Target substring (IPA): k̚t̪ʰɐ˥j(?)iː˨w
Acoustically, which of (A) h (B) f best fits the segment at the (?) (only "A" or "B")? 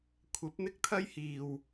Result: A